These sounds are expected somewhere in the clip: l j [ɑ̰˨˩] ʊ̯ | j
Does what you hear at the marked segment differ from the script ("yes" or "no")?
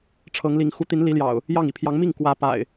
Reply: no